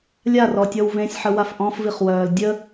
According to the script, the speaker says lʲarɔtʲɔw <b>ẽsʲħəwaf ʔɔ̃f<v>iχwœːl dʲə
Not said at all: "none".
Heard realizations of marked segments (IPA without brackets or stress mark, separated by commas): v, v